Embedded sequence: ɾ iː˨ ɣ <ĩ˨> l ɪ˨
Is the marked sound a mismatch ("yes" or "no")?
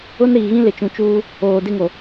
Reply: yes